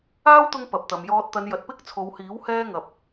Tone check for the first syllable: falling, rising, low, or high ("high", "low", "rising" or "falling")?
high